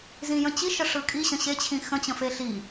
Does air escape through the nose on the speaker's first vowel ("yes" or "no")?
yes